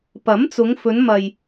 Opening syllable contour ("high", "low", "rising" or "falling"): rising